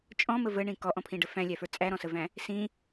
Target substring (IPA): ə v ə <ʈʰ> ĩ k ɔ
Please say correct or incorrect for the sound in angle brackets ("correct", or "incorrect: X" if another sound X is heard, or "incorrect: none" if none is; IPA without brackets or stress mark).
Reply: incorrect: ɳ